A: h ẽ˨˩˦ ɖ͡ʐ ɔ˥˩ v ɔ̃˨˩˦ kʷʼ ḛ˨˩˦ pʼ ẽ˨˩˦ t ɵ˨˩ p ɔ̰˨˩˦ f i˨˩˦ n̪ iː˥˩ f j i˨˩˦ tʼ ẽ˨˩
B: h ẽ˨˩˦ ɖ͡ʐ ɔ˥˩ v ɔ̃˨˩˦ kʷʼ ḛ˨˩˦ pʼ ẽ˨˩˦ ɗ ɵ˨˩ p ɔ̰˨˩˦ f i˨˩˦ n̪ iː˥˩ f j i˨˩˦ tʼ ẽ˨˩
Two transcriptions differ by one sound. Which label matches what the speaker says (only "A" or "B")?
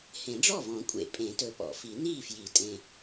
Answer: A